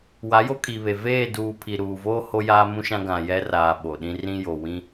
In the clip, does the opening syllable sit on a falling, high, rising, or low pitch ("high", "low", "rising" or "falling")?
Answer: rising